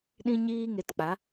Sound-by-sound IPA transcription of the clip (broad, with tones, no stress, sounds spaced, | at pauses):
ɗ ĩ˦ ɲ iː˦ ŋ e˧ t k͡p a˨˦